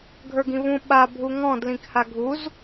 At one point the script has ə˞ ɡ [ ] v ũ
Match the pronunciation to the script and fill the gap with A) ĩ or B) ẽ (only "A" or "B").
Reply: A